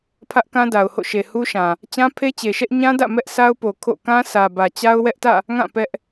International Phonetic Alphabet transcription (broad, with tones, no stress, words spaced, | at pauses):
pʰä˦ʔkã˦da˨ʊ̯ho̰˦˨ ʃe˨hu˦ʃã˨ | t͡ɕã˦pʰe˦t͡ɕe˨ʃɛ˦ʔ ɲã˦dä̰˦˨ mɛ˦ʔsʰa˦ʊ̯po˨ kʰo̰˦˨ kã˦sʰä˨bä˨ t͡ɕa˦ʊ̯wɛ˦ʔtä̰˦˨ | ŋã˦˨ pɛ˦ʔ